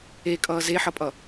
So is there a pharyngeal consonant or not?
yes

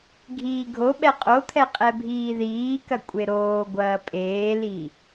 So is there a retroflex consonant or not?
no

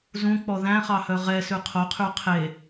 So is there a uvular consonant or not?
yes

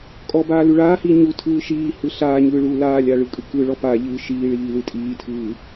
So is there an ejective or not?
yes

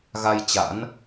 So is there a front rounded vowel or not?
no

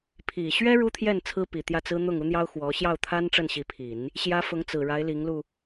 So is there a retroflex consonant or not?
yes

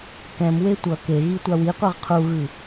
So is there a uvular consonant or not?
yes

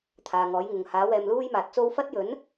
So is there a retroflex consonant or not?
no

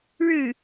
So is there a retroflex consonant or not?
yes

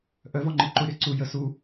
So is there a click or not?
yes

